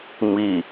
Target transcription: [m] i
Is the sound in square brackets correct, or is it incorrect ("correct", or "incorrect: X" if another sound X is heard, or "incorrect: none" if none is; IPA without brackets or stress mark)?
correct